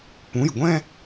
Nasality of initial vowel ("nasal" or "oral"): nasal